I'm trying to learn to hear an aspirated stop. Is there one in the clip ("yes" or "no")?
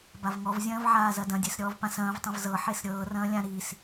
no